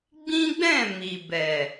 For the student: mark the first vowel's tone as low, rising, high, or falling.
high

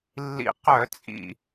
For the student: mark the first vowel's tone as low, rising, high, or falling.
low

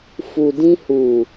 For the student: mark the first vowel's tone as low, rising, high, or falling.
low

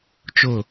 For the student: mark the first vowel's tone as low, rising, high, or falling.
falling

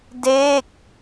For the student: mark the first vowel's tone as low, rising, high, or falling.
falling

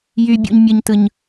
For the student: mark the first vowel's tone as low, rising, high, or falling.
high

